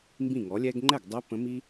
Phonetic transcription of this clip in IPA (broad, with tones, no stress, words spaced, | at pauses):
mbĩ˥˩ŋɔ˩˥lʲɛ˥ɡ ŋ͡ǃɛ˥˩ɡdˤɛ˧˥ pə̃˧˥mi˥